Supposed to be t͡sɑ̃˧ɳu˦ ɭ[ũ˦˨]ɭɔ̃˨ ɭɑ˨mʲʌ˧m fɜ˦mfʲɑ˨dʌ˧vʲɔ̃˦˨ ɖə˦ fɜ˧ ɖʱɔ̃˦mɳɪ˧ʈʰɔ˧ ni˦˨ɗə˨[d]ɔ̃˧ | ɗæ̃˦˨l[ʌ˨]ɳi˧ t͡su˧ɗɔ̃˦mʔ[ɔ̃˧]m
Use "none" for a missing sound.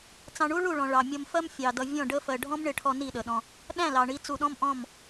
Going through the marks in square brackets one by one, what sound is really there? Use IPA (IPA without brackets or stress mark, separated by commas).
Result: u˦˨, ɗ, ɑ˨, ɔ̃˦˨